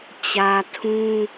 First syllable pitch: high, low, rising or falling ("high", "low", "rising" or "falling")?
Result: low